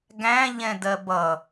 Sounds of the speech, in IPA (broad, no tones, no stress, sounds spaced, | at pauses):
ɡ æ̃ ʎ ɛ̃ d ɜ b ʌ